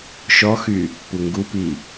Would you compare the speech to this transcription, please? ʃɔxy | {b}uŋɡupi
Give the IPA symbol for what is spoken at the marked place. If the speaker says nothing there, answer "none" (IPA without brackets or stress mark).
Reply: p